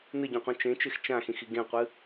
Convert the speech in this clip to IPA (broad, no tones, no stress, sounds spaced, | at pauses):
n ɨ ɟ ũ qʷ ĩ t͡ʃ ẽ t͡ʃ e x t͡ʃ ã x ĩ x i ɡ ẽ qʷ ɨ